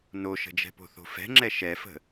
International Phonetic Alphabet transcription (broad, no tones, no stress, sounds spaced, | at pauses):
n o ʃ ə̤ d͡ʒ ɛ̤ p o̤ θ o̤ f ɛ̤ ŋ͡ǁ ɛ ʃ ɛ f ə̤